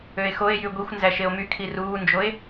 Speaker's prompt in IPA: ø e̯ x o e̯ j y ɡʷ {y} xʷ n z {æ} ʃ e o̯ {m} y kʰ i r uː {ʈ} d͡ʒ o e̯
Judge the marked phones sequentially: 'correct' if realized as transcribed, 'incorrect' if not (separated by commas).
incorrect, correct, correct, incorrect